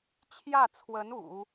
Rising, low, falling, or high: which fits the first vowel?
falling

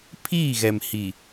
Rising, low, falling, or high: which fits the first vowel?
falling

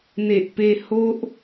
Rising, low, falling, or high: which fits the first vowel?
low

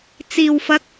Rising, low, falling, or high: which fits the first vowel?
low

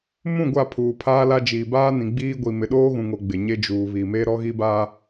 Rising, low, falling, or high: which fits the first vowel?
falling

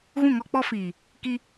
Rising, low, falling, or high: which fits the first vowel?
falling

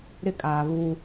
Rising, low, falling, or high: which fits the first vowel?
high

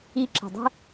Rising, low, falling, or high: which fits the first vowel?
high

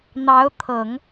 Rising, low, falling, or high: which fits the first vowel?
rising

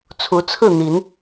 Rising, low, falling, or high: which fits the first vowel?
rising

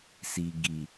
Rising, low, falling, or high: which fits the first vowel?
low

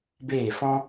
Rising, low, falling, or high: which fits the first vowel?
falling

